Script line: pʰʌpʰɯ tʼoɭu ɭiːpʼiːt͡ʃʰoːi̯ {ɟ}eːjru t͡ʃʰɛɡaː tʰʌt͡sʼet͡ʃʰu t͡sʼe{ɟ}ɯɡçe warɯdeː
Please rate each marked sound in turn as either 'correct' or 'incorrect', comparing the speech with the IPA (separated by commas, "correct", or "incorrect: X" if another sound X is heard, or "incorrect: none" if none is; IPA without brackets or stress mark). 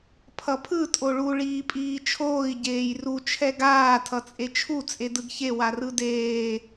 correct, incorrect: d